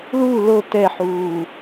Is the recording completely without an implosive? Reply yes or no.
yes